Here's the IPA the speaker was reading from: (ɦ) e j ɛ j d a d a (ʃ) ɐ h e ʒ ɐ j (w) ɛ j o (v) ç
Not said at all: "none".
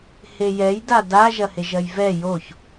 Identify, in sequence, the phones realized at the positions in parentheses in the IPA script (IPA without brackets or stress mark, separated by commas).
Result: h, ʒ, v, none